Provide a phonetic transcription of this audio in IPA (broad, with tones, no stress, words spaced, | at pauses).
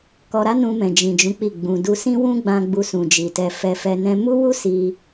kɔ˧ɾa˦nũ˧ mɛ̃˨d͡ʒĩ˨d͡ʒũ˨˦ k͡pi˦˨ɡ͡bũ˧ du˧sĩ˦wũ˦ɡ͡bã˧ ɡ͡bu˧sũ˨d͡ʒi˨tɛ˧ fɛ˧fɛ˧ nɛ̃˧mu˦wu˦ si˦